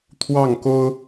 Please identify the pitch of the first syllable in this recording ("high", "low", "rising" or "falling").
falling